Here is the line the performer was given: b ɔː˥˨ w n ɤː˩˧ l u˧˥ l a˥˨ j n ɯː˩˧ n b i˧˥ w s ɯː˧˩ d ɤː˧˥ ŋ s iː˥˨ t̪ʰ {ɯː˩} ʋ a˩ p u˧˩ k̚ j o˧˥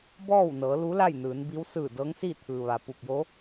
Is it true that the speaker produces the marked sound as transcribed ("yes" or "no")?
yes